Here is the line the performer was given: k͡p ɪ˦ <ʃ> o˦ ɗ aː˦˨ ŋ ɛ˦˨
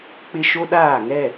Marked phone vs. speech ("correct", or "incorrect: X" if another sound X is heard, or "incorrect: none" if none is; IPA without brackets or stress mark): correct